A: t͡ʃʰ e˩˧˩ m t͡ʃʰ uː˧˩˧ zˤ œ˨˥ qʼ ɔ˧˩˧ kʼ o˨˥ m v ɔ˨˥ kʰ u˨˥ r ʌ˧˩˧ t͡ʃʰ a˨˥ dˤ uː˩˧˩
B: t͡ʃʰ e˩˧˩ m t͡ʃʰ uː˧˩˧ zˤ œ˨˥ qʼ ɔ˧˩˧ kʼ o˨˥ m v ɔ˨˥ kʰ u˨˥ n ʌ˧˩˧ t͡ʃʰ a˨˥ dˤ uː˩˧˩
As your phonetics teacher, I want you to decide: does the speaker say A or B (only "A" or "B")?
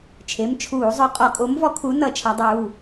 B